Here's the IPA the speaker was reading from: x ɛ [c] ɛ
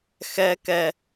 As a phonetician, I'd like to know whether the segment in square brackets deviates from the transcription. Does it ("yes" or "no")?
yes